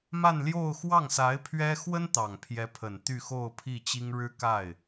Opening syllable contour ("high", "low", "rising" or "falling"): falling